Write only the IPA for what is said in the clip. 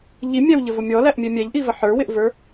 ʎ i mʲ æ w ʎ ə v ʊ mʲ ɔ l æ ʔ mʲ ɛ mʲ æ ʎ ʔ i v ə ħ ə˞ w ɪ ʔ v ə˞

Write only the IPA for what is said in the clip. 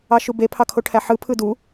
ɑ ʃ u b e pʰ ɑ kʰ o ʈʰ æ ħ ɯ pʰ ɯ d u

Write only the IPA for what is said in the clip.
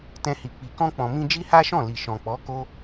t ɛ̃˧ h i˨ k͡p i˨ k ɔ̃˧ k͡p ɔ̃˨ m ĩ˧ d͡ʒ i˦ h a˦ ʃ ɔ̃˦˨ l i˨ ʃ ɔ̃˨ k͡p ɔ˨˦ k o˦

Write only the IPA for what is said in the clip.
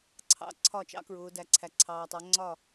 ǀʰ ɑ̰˥˩ ǀʰ ɒ˥˩ t͡ʃ ɑ̰˥ k ɹ ʊː˩˧ d æ˩ ǀʰ æ˩ ǀʰ ɑː˩ tˤ ɜ˩˧ ŋ͡ǀ ɒ˥˩

